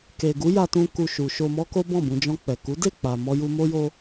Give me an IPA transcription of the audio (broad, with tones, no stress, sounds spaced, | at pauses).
k e˨ ɡ u˨˦ j a˦ t ũ˦ k u˧ ʃ u˨ ʃ o˧ m ɔ˦ k o˦ b ɔ̃˦˨ b ũ˧ d͡ʒ ɔ̃˧ k͡p ɛ˨ k u˨˦ d e˦˨ k͡p a˨ m ɔ˨ j u˨ m o˧ j o˧